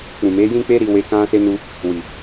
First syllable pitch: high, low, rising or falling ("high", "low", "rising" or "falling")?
low